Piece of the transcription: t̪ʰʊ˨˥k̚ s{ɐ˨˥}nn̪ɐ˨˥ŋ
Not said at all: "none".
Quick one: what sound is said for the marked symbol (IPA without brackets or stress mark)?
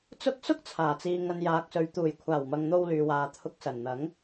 ɐ˨˩